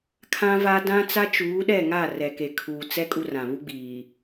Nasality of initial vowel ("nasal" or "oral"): nasal